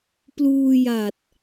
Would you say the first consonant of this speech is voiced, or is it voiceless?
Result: voiceless